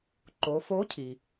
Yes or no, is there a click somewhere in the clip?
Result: yes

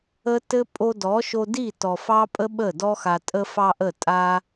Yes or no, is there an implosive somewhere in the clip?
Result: yes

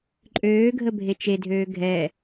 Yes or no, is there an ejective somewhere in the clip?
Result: yes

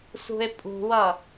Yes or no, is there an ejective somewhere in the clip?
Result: yes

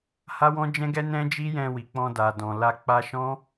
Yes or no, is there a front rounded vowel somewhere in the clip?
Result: no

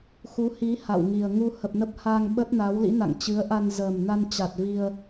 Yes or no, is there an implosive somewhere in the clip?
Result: yes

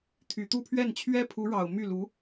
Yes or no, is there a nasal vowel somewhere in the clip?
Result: no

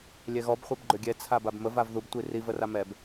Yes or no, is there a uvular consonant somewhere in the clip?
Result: yes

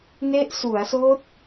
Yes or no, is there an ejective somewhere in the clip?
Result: no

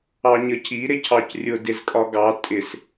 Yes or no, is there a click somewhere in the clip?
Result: no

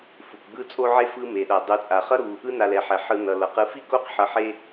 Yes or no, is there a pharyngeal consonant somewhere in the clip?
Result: yes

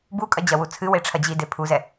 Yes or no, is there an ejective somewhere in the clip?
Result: yes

